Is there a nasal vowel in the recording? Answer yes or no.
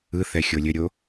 no